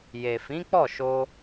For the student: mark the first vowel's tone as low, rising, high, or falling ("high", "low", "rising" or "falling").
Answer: low